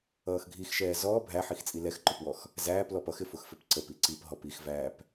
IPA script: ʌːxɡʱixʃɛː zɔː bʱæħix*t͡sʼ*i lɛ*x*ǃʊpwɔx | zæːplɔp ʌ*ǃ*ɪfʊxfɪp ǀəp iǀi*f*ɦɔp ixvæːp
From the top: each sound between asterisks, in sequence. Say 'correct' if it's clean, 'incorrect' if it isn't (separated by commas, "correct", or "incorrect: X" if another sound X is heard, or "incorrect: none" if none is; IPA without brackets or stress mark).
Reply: correct, correct, incorrect: x, incorrect: p